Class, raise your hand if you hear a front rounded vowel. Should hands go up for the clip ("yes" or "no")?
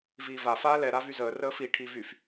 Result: yes